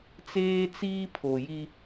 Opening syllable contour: high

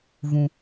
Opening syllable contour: low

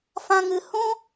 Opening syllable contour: high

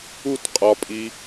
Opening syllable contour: falling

